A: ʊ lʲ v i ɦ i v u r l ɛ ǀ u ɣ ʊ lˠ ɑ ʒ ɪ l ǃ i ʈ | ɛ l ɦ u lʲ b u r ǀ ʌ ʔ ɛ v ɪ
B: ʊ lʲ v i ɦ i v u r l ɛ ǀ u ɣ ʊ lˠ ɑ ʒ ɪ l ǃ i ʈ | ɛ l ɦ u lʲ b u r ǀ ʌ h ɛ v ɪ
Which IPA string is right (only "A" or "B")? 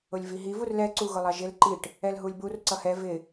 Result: B